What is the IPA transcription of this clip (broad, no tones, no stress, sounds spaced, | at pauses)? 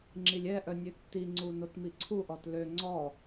ŋ͡ǁ i lʲ ɛ ʔ œ nʲ ø tː i ŋ͡ǀ u n o t m i ǀʰ u ʔ ɔ t l ø ŋ͡ǀ ɔ